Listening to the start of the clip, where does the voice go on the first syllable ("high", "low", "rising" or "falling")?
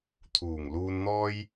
low